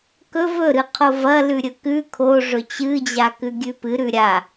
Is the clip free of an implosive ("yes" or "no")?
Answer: yes